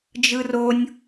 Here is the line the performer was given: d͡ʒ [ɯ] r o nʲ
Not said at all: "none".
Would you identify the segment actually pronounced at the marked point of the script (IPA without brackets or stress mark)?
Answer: ɯ